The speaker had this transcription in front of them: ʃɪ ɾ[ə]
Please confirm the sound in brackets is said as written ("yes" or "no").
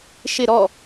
no